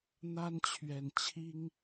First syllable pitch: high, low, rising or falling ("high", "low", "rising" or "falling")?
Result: high